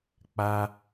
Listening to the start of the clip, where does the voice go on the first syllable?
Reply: high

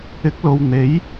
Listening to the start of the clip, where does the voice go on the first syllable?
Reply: rising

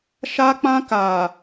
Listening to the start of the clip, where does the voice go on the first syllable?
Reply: high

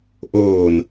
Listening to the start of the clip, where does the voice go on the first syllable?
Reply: low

